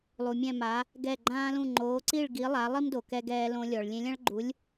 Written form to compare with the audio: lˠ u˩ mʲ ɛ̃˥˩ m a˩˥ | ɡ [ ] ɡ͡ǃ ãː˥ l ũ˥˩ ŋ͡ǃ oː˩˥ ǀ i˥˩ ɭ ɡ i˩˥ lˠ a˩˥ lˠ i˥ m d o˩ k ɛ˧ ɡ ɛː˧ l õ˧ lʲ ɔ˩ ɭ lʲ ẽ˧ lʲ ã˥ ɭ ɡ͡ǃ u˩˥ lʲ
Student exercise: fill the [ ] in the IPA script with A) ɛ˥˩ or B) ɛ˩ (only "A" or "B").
A